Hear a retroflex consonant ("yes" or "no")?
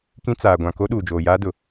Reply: no